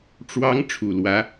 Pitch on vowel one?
rising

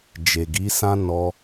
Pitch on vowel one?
low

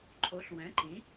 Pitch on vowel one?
rising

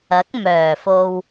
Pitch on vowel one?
rising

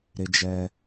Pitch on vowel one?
high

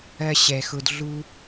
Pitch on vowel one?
high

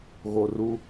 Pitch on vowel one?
low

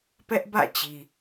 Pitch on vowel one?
high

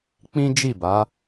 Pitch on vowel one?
high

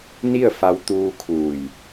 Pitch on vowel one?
falling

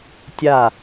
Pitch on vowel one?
falling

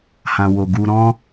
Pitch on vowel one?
low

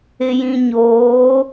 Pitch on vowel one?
low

